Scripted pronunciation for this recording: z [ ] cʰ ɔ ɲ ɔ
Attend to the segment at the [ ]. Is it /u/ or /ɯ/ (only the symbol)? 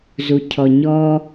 u